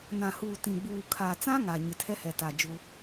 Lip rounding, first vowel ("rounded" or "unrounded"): unrounded